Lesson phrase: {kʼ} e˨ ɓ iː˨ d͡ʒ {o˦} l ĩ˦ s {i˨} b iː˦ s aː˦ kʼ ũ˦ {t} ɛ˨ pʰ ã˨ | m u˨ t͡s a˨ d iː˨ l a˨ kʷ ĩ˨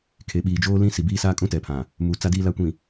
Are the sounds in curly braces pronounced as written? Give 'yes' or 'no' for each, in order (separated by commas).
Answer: no, no, yes, yes